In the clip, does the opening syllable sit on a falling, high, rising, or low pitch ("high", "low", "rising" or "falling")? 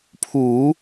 low